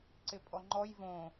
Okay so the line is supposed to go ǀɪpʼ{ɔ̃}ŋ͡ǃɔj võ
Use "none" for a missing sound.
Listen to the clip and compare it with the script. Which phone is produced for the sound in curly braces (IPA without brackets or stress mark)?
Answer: ɔ